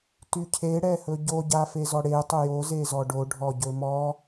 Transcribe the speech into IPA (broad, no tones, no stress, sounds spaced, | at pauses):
t y cʰ e ɽ ɛ h ɵ ɟ o ɟ a f e z ɔ ɽ e tˤ ɵ j o z e z ɔ ɖ o ɖʱ ɔ ɟ ɵ m ɔ